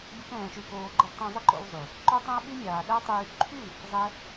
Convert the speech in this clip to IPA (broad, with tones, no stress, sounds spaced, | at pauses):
bʲ ə˦ k ɛ̃ː˧ ʃ y˧ k oː˧ ɡ͡ǃ ə˧ d tˤ ɛ̃˧ zˤ ə˦ ǃ o̰˧ w zˤ y˨ | ǃ o˦ tˤ ɛ̃˦ ə̯ ɓ y˦ mʲ aː˨ ɗ æ˦ tˤ yː˧ ǃʰ y˦˨ | zˤ ɛ˦